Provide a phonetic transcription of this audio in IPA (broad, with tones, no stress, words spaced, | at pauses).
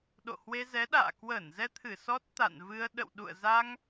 ɗo̰˧˨hwe˧zɛ˨˦ɗa̰ː˧˨ kwə˧˩n zɛ˧t̪ʰɨ˧˩ sɔ˦˥t̚t̪a̰˧˨nvɨ˧ə̯ ɗə̰˧˨wɗṵ˧˨ə̯ za˧ŋ